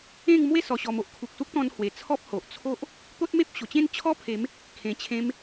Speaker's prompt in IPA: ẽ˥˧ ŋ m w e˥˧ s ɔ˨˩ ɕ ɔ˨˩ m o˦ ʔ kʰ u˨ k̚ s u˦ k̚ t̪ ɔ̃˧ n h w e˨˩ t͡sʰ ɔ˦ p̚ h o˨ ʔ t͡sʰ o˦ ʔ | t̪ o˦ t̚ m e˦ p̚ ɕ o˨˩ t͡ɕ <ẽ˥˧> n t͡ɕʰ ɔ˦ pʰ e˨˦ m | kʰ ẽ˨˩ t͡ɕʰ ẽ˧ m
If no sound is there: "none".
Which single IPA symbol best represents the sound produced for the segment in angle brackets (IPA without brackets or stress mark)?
ẽ˥˧